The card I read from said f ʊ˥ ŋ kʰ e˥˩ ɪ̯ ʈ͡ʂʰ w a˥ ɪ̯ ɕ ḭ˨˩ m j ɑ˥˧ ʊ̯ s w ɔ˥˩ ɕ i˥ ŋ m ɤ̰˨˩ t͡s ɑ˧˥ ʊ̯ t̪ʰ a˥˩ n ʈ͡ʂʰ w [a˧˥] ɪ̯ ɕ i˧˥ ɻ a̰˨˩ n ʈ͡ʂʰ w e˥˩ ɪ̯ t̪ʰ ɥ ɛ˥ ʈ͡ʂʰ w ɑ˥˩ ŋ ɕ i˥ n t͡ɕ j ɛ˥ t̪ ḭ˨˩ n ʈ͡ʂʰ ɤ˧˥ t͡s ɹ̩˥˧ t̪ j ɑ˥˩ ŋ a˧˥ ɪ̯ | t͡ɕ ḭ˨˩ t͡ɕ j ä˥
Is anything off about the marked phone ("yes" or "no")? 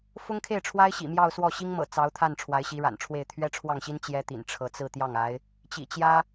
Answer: no